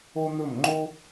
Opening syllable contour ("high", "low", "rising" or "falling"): high